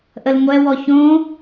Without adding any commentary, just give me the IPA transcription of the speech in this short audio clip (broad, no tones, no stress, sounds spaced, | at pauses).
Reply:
ʔ ə l ŋʷ ɛ w ɔ ç õ